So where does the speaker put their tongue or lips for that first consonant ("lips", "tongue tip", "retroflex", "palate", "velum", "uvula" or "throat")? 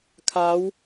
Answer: velum